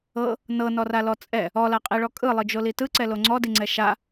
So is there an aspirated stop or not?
no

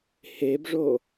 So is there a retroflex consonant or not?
yes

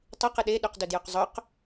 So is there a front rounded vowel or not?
yes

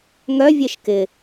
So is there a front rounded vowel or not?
yes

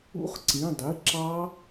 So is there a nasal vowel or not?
yes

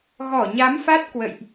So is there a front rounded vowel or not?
no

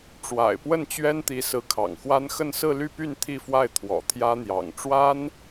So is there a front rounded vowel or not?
yes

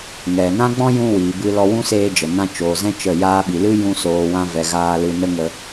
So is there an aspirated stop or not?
no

